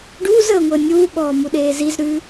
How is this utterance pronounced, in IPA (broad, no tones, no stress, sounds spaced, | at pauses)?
ɖ uː z əː ŋʷ əː nʲ uː ɓ ɔː m u ɗ eː z i z ɾ ʉ